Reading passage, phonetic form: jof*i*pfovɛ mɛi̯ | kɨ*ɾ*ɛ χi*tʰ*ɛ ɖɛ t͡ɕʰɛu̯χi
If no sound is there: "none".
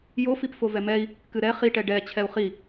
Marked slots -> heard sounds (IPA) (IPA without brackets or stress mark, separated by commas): i, ɾ, ʈ